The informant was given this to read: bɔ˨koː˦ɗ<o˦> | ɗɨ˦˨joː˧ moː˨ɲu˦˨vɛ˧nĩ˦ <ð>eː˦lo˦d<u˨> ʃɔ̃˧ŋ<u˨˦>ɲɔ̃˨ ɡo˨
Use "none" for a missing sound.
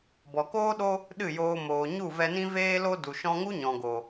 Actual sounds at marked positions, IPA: o˦, v, u˨, u˦

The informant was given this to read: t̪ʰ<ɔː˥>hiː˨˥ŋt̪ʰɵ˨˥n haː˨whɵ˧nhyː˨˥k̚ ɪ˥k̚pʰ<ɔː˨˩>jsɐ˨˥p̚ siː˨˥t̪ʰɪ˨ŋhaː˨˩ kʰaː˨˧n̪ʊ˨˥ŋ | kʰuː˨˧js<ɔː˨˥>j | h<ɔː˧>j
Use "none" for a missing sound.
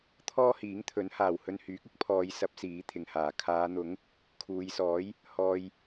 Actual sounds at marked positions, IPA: ɔː˥, ɔː˨˧, ɔː˨˥, ɔː˧

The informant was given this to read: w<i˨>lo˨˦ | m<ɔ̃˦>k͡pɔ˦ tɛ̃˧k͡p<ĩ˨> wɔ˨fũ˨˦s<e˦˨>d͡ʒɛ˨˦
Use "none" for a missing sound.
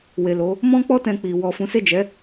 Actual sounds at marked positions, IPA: e˨, ɔ̃˦, i˨, e˦˨

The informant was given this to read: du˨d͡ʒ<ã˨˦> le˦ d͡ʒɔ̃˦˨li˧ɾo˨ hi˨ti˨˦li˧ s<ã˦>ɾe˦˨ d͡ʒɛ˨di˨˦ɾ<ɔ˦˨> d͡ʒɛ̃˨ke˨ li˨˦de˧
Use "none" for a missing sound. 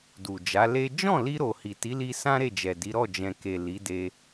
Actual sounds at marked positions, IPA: a˨˦, ã˦, ɔ˦˨

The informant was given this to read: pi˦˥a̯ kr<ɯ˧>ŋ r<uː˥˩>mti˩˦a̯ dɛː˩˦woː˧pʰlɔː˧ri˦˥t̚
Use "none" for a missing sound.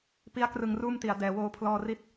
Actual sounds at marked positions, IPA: ɯ˧, uː˥˩

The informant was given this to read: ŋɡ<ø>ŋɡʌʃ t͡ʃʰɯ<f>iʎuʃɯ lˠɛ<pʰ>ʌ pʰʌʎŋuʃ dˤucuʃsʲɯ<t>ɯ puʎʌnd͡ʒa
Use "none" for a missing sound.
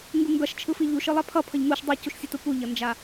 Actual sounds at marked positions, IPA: u, f, pʰ, t

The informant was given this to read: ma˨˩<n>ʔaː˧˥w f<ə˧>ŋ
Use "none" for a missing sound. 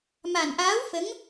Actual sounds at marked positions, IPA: n, ə˧˥

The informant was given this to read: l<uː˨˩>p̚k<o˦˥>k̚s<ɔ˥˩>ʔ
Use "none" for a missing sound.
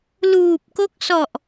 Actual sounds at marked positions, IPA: uː˨˩, o˦˥, ɔ˨˩

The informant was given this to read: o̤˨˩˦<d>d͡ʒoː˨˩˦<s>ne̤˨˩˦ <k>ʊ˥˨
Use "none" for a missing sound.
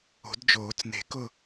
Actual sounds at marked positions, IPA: d, t͡s, k

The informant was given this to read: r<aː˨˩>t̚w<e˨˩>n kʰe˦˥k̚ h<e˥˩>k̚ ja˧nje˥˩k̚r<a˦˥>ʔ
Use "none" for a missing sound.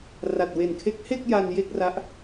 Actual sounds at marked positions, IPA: a˨˩, e˨˩, e˥˩, a˦˥

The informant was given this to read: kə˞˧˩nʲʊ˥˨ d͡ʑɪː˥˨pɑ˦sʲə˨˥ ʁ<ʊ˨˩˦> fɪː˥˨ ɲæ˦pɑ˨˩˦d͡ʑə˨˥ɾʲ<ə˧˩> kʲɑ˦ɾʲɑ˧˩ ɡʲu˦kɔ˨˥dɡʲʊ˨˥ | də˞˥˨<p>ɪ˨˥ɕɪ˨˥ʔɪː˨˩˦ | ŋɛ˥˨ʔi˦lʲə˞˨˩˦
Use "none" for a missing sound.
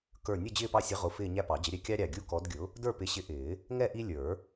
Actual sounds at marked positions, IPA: ʊ˨˥, ɛ˧˩, p

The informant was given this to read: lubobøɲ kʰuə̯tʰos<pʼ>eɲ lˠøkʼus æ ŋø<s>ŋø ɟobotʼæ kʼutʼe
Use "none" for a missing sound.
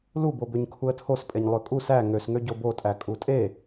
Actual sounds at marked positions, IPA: pʼ, s

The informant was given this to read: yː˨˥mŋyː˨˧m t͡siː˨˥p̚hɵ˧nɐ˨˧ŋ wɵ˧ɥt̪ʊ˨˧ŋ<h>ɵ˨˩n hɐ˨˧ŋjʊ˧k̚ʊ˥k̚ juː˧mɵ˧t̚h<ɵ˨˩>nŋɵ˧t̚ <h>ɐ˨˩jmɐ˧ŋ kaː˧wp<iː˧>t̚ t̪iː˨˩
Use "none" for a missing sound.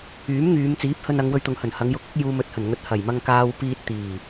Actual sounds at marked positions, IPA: h, ɵ˨˩, h, iː˧

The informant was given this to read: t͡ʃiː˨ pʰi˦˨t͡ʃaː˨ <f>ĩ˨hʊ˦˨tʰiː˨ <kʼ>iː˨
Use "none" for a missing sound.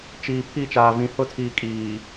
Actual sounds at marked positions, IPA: v, kʼ

